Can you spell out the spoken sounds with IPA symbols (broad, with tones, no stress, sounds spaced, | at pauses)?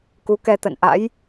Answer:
k u˨˦ k ɛ˧ t̪ ə̰˧˨ n ʔ a̰˧˥ j